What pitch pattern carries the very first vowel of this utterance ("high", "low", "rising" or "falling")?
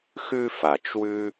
high